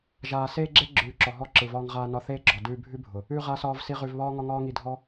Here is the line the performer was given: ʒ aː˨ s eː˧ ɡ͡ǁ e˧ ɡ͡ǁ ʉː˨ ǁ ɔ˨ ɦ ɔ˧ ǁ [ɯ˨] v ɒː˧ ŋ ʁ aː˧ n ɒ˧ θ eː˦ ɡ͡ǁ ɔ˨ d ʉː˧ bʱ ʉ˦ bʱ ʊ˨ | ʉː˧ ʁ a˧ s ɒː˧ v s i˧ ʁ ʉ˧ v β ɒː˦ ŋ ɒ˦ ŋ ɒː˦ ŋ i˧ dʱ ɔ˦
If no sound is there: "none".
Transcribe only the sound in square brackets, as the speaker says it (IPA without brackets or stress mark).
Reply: ɯ˨